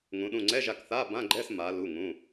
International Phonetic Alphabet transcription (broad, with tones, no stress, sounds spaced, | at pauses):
ŋ ũ˩˧ ɗ ũ˩˧˩ ŋ͡ǀ ɛ˧˥˧ ʒ a˧˩ k θ a˧˥˧ b ã˧˥˧ ɡ͡ǃ ɛ˧˥˧ s m a˩˧ l u˩˧˩ ŋ ũ˩˧˩